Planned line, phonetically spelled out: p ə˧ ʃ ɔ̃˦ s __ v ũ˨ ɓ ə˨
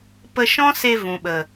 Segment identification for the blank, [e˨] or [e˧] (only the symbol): e˧